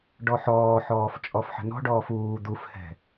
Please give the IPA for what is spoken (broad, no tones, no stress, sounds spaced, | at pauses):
ɖ ɔ ħ ɔː ħ ɔː f t͡ʃʼ ɔ f ħ ə̤ n ɔ̤ ɖ ɔː f uː d̪ u f h ɛ̤